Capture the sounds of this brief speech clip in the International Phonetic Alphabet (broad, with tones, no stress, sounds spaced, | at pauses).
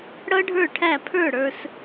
ɽ ʌ˥ ɖʱ ə˞˥˩ ʈʰ æ˥˩ pʰ ə˞˥˩ ɽ ə˞˧ s